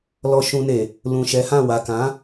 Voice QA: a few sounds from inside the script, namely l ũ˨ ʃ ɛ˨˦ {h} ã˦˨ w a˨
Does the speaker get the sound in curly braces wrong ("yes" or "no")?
no